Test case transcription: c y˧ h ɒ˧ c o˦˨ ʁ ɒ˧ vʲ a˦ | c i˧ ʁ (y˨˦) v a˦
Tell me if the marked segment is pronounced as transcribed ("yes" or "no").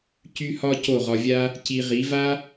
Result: no